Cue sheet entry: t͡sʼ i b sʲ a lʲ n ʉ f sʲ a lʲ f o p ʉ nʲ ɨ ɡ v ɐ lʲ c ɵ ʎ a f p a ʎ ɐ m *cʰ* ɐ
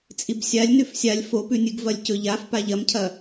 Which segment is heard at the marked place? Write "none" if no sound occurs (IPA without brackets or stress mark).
cʰ